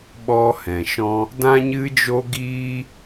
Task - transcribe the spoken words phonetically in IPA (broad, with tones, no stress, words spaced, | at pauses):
ɓɔ˦hɛ̃˨ʃɔ̃˦ | dã˦ɲɨ˦d͡ʒo˦ɡiː˦